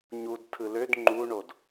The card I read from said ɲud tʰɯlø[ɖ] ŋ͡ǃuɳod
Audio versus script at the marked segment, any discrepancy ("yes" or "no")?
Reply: yes